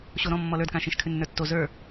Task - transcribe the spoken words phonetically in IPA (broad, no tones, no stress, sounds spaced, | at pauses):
ɕ o ɾ ɔ̃ mː ɔ l ə˞ d k ã ʃ ĩ ʃ kʰ ʉ nː ə˞ tː o z ə˞